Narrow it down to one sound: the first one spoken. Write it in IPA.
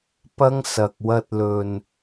p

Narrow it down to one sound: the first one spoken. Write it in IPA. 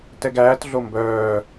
t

